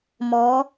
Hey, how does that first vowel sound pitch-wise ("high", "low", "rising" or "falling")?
rising